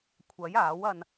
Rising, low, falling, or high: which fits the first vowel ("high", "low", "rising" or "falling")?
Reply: rising